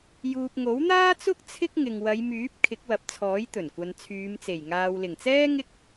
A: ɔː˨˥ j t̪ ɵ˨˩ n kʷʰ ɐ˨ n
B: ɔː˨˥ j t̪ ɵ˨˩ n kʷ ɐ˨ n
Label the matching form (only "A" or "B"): B